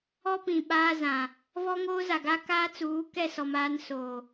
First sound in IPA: ɔ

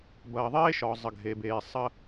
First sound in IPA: b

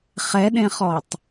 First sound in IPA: χ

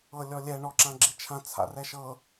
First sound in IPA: ɤ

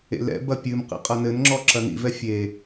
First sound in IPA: ḛ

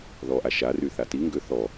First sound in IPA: ð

